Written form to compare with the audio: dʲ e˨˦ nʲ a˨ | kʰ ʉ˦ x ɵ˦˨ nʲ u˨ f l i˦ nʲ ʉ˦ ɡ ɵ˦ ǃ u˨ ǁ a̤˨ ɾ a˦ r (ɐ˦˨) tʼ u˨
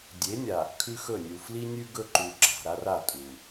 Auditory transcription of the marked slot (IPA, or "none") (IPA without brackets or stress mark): a˦˨